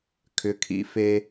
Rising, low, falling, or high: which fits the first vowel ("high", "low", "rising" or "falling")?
high